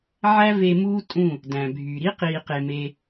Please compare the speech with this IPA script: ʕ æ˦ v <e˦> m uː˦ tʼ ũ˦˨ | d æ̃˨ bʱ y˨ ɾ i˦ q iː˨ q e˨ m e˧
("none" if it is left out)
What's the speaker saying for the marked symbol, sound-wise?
e˧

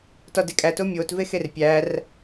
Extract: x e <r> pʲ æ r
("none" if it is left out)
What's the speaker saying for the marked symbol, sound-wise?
r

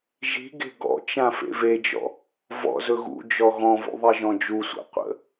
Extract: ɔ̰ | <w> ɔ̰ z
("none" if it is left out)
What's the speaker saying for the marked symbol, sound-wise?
v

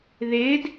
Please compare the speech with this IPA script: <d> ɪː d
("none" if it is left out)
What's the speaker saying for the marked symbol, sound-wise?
ð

